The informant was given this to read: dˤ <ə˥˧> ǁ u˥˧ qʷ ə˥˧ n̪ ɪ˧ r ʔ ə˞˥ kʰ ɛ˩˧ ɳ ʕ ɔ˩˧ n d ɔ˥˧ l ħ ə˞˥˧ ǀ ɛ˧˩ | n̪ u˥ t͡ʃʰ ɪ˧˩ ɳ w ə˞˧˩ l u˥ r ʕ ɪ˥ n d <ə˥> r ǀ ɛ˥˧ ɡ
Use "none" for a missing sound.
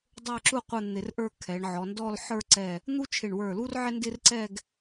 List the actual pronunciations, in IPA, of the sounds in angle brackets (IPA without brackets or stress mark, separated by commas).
ə˞˥˧, ɪ˥